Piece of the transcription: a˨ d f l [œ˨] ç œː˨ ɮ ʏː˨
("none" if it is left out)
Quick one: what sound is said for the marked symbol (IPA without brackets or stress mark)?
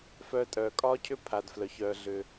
œ˨